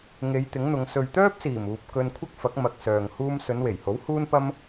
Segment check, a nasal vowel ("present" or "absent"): absent